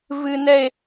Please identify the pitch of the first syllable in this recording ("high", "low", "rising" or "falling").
high